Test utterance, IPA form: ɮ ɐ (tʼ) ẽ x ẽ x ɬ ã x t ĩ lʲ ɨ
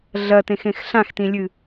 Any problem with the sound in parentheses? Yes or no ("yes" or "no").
yes